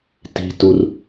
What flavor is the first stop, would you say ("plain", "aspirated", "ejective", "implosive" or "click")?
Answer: plain